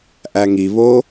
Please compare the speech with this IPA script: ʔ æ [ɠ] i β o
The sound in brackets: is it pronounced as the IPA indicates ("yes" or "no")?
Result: no